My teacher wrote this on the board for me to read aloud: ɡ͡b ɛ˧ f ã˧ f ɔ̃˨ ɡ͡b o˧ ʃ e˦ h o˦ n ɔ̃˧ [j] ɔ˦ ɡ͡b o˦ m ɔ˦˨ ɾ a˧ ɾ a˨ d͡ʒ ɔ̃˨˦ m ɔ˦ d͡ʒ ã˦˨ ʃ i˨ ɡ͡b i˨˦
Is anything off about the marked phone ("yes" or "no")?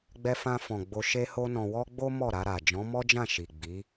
yes